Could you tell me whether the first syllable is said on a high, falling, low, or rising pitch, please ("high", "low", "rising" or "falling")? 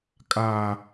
high